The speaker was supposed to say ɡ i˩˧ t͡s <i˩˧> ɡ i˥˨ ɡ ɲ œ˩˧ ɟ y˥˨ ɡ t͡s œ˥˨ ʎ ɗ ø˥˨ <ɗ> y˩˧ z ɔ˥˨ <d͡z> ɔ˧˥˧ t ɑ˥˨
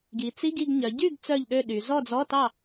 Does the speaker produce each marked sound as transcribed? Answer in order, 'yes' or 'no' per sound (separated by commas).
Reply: no, yes, yes